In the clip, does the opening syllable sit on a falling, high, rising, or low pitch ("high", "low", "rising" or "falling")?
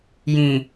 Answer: low